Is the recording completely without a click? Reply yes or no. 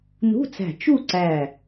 no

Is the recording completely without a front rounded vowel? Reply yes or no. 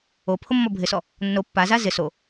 yes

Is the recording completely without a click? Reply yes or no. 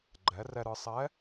no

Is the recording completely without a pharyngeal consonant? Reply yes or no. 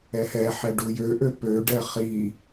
no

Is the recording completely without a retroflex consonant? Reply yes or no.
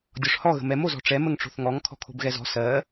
no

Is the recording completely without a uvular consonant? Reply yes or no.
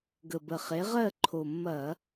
no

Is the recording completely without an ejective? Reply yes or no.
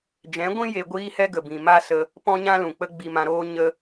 yes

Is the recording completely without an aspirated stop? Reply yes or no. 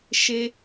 yes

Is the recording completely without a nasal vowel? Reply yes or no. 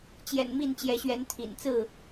yes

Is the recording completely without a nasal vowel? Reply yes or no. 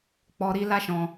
no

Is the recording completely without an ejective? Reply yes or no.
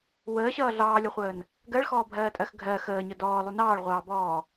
no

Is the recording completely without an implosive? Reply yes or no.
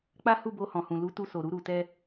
yes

